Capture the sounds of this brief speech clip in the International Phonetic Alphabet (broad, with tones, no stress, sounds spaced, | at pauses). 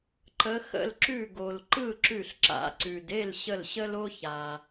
ǃ ə˨˦ x ə̰˥˨ l ǁ ʉ˧˩ ɡ o˩ l ǃ ɯ˥˨ ǁ ʉ˧˩ ɬ ǁ a̰˨˦ ǀ ʉ˩ d e˥˨ l ɕ ə˧˩ l ɕ ə˦ l o˦ ç a˩